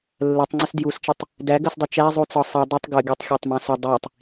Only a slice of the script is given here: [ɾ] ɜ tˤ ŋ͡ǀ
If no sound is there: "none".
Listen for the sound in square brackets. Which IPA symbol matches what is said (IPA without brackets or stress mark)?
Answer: lː